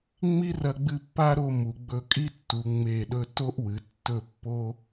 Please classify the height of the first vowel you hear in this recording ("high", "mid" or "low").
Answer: high